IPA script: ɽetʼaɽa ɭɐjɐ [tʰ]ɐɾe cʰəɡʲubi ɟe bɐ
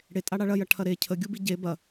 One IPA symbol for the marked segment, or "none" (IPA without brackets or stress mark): ʈʰ